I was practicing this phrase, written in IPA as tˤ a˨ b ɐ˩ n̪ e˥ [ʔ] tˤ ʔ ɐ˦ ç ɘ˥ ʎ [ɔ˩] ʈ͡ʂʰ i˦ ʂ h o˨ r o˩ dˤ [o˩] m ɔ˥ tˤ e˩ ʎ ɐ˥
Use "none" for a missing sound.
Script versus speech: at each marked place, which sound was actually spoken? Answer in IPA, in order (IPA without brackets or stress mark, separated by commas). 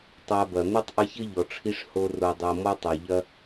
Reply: none, ɔ˩, o˩